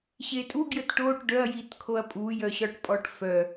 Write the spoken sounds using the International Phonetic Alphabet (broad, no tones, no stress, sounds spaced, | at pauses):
ɕ e tʼ u ɡ j ə t ʈ o ʈ ɖ œ ɐ̯ j i t kʰ o ɐ̯ pʼ u j œ ɕ ɒ ʈ pʼ ɔ ʈ f œ